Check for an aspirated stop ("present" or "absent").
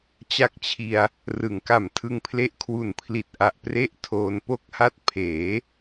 present